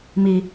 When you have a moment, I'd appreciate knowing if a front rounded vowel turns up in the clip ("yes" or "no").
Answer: no